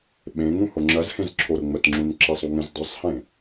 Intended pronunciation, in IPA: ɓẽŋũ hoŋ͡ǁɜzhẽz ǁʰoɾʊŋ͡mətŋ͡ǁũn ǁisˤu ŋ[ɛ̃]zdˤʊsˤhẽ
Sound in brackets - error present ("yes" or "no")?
yes